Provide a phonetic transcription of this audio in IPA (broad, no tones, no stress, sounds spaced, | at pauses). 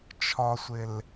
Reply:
t͡ʃʰ ɒ sʷ ɪ l